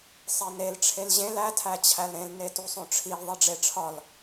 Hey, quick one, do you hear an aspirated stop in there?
yes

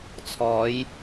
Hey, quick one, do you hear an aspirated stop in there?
yes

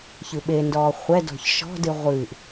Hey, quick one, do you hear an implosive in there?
yes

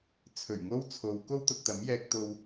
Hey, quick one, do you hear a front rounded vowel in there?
no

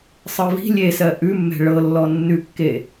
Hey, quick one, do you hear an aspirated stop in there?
no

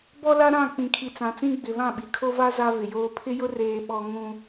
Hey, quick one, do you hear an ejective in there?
no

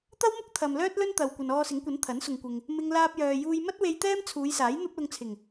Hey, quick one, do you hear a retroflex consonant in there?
no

